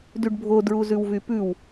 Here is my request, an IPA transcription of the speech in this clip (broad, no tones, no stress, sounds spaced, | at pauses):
d y ɖ bʱ o d ɹ u z ʉ w v y p ʉ w